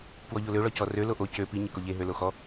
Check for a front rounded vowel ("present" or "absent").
present